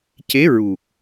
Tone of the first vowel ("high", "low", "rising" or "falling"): rising